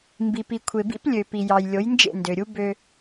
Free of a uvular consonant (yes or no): yes